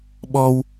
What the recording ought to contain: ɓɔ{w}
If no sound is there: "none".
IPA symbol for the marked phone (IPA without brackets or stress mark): w